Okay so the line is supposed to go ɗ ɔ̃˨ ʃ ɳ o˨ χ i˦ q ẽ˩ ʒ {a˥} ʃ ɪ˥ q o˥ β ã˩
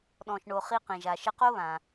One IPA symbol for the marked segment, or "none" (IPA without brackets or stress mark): a˩